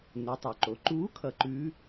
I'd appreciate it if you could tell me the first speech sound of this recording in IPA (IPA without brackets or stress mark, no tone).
n